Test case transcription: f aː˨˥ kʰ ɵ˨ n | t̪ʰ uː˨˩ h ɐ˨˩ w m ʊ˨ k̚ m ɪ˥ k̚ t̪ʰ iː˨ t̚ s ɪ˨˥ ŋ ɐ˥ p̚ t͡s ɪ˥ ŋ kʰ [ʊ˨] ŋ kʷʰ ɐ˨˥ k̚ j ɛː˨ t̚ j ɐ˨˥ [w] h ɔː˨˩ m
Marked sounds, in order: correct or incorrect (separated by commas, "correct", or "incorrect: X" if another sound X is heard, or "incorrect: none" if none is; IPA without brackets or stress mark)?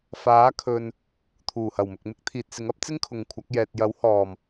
correct, correct